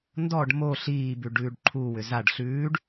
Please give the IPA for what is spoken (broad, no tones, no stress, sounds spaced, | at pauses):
n d ɔ ɖ m o ɬ iː b ʉ ɖ ʉː ɖ ǃʰ u w ʏ z a ɖ ɬ ʉː ɖ